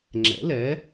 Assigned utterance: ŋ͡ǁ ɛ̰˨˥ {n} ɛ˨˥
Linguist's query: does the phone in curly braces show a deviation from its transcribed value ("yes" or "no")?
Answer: yes